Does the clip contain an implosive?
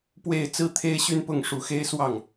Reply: no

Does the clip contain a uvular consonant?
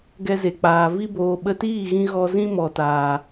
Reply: no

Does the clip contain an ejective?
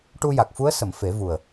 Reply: no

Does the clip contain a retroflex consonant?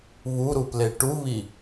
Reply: yes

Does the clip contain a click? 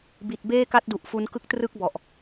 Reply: no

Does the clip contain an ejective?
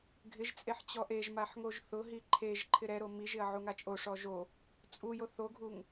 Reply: yes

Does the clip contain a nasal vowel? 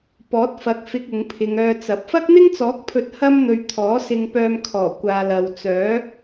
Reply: no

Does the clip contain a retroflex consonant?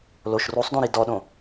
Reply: no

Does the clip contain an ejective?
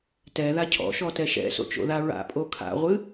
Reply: yes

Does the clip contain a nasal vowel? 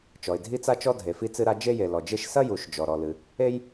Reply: no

